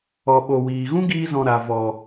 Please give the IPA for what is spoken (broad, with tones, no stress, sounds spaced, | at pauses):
ɔ˨ ɓ o˨ w iː˨ ɣ ũ˦ ɡ iː˧ z ɔ̃˨ ɾ a˨ v ɔ˨